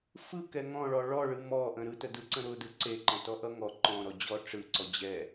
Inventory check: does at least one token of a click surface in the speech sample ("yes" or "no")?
yes